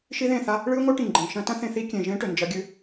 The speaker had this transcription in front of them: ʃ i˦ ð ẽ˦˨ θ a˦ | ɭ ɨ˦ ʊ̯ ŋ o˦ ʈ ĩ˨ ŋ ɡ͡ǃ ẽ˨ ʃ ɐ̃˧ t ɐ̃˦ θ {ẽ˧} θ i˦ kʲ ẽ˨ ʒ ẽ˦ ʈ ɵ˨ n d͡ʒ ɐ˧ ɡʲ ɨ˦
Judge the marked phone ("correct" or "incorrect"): correct